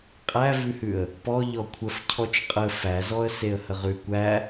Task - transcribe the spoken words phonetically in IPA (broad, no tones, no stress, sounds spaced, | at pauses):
qʼ æ v ʉ h ʉ ə̯ | p ɔ ʎ ɔ kʷʰ ə f cʰ ɔ t͡ʃ qʼ ə f æ z ɔ ə̯ s e ə̯ h ə ʁ ʉ kʷ æ